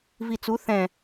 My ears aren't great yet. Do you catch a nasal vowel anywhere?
yes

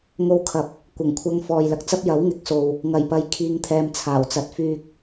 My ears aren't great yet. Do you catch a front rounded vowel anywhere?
yes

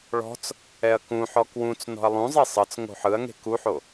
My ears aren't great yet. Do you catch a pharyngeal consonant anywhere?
yes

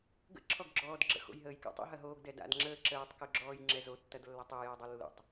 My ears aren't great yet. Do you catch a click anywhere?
yes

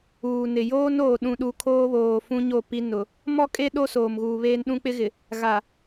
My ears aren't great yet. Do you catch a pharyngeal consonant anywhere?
no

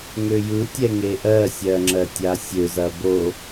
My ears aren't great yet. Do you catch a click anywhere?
yes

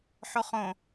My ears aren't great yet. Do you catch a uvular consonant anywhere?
yes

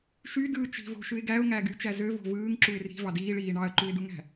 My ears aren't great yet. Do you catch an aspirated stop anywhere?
no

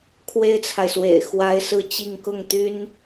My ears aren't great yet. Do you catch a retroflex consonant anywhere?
no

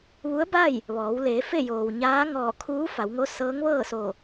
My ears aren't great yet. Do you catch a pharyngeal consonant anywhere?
no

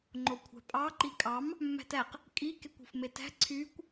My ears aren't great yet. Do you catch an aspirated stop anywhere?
yes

